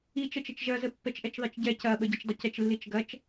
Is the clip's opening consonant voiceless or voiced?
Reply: voiceless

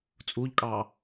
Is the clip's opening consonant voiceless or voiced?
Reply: voiceless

